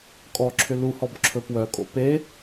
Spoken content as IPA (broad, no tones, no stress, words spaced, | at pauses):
kʼɔǁʰʏ luhɔb ǁʰɵpwœkʼo̰ pe